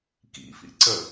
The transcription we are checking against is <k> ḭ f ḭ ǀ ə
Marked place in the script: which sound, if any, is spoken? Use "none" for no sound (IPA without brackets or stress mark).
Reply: k